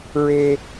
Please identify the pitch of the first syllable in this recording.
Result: high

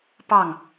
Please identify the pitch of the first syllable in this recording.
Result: falling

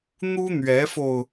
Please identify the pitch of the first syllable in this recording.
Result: high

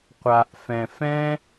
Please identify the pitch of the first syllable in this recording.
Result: low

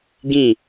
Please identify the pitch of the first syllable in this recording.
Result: falling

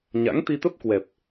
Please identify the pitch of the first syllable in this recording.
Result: rising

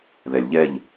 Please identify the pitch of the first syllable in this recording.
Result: low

